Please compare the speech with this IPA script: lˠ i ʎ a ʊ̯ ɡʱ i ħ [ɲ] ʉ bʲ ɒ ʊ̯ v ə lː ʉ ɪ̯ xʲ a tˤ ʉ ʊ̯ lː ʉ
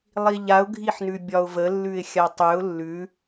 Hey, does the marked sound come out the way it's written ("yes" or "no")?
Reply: no